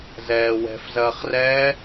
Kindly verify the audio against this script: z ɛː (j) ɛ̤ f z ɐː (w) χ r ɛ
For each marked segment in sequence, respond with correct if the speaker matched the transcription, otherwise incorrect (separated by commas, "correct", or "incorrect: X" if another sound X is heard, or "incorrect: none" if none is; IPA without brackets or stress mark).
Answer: incorrect: w, incorrect: none